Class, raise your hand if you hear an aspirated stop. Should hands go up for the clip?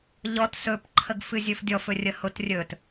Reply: yes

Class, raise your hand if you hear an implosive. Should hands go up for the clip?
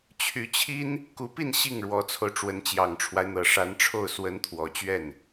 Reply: no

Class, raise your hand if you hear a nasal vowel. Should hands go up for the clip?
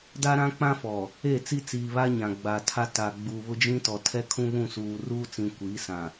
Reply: yes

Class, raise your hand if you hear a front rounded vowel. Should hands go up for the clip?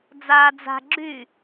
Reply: yes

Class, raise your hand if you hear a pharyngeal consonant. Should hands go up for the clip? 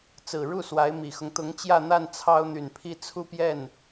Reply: no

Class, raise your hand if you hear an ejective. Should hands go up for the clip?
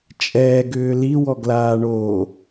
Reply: yes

